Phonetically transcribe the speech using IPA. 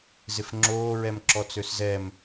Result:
z ɪ f ŋ͡ǁ oː ɹ ɛ m ǁ ɔ t͡s ø s z ɛ m

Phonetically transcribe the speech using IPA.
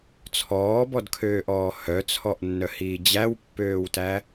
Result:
t͡sʰ ɔː b ɔ d kʰ øː ʔ ɔː h œ t͡sʰ ɔ ʔ nː œ h iː d͡ʑ æ w pː øː w t æ

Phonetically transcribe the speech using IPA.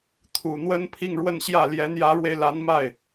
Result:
t̪ʰ u˨˩ n̪ w ə˥ n pʰ i˥˧ ŋ ɻ w ə˥˧ n ɕ j ä˥˩ l j ɛ˧˥ n j ä˧˥ ɻ w e˧ ɪ̯ l a˧˥ n m a˥˩ ɪ̯

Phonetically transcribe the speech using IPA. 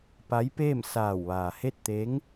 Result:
p a˧˥ j p eː˥˨ m s aː˧˩ w ʋ aː˩ h e˥˨ t̚ t̪ e˧˥ ŋ

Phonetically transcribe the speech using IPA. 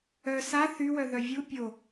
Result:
œ s a θ y w œ ð œ vʲ u pʲ o

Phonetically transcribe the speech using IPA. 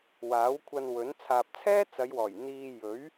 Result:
w aː˨˥ w kʷʰ ɐ˧ n w ɵ˨˥ n t͡sʰ aː˨ p̚ t͡sʰ ɛː˥ t͡s ɐ˨˧ j w ɔː˨˩ j n̪ iː˧ j ɵ˨˥ ɥ

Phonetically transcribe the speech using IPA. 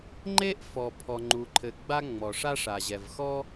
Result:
ŋ͡ǃ e˥ ʔ f ɔ˩ pʰ ɔ˩ ŋ͡ǃ u˩ ǃʰ ɘ˩ ɡ͡b a˥ ŋ͡m ɔ˩ ʂ a˥ ʂ a˩ ʑ ɛ˩ v x ɔ˥

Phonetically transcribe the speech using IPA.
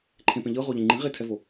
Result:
ǃʰ ẽ p ẽ ʎ ɤ ʁ o ʎ ẽ ŋ͡ǃ ĩ ʁ e tʰ ɛ v o

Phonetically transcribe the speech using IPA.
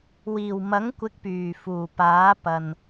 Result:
w iː˨˩ w m ɐ˨˥ ŋ kʷ ɪ˨˥ k̚ p yː˨˩ f uː˨˩ p aː˨˥ p ɐ˨ n

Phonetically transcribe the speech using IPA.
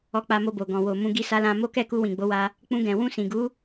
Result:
ɔ˧ k͡p a˧ m o˧ b o˨ ɡ ɔ̃˨ w o˨ m ũ˧ ɡ i˧ s a˧ l ã˧ m o˦ k ɛ˦˨ k u˧ w ĩ˨ ɡ͡b o˨˦ w a˧ | k͡p ũ˧ ɡ ɛ̃˨ w ũ˧ s ĩ˨ ɡ u˨˦

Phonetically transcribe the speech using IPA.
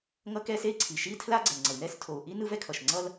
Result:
ŋ ʌ˥ k ɛ˥ s e˥ i̯ ǀʰ i˩ ʃ i˥ tʰ l a˥ ɡ͡ǀ ɛ˩ n ŋ͡ǀ ʌ˩ i̯ n ɛ˥ s tʰ o˩ u̯ ʔ i˥ n ɯ˥ v ɛ˥ kʰ ʌ˩ ʃ ŋ͡ǀ ʌ˥ l

